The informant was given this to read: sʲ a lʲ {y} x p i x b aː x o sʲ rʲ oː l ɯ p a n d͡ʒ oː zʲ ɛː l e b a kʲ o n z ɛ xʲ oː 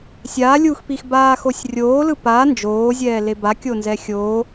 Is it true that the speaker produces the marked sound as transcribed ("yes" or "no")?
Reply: no